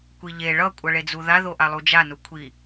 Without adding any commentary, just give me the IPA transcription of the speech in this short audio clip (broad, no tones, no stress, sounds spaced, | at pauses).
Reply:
kʷ i ʎ e ɭ ʌ kʷʼ ʌ ɭ e d͡z u ð a ð o ʔ a lˠ u d͡ʒ a n u kʷʰ i